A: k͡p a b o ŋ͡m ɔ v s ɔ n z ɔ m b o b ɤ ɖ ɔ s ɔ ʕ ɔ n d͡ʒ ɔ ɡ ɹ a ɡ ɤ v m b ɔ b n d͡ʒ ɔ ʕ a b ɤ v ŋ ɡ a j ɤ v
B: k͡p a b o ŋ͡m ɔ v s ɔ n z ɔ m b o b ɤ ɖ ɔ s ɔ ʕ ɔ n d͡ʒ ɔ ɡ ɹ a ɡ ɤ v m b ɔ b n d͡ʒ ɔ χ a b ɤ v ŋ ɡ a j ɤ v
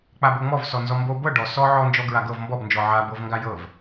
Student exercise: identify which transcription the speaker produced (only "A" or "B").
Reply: A